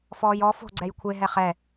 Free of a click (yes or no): no